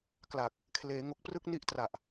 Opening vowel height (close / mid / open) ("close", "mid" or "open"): open